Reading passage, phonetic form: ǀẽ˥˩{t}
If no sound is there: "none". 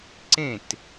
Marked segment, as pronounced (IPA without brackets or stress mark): t